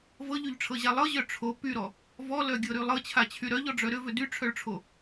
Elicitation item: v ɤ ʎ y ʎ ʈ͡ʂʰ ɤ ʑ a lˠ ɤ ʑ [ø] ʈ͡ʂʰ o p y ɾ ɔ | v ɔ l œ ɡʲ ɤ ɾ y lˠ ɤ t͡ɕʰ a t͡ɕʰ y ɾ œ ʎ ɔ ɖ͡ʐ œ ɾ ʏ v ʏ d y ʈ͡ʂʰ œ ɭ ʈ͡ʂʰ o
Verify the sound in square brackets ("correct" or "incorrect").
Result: incorrect